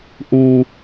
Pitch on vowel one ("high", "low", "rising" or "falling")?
low